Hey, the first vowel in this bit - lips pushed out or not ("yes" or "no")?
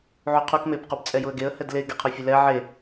yes